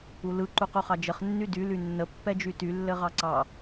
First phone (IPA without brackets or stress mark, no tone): u